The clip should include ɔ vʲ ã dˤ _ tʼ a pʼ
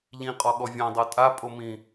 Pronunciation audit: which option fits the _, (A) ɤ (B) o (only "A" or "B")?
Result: A